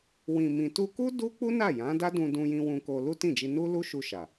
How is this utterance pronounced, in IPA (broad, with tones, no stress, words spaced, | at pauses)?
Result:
wĩ˨mĩ˨tu˧ku˦ du˦k͡pu˦ na˦˨jã˨˦da˦dũ˧ dũ˧jĩ˧ wũ˧ko˧ lu˦tĩ˦˨d͡ʒi˧ nu˦lu˦ʃu˧ʃa˨